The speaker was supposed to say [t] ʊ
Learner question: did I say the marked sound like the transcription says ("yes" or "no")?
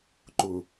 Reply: no